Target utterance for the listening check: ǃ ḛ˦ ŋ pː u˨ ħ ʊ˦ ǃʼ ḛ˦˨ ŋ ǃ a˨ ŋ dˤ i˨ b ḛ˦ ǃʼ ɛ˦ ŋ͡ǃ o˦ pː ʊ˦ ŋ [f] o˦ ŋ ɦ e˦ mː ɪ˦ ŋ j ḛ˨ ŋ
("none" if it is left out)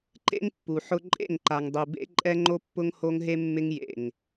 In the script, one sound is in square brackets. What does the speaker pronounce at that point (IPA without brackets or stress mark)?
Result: h